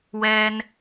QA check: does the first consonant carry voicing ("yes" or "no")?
yes